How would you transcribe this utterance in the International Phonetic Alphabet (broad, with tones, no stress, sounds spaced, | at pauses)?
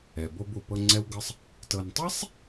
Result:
ɛ˩ b o˧ b u˩ p ɤ˧ ŋ͡ǀ ɛ˥ w ɡ ɤ˥ sˤ | t ɤ˧ n tˤ i˥ sˤ